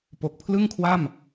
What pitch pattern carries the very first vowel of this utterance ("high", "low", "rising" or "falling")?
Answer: low